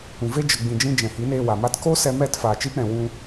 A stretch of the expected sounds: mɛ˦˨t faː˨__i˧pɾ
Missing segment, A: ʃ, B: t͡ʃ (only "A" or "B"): B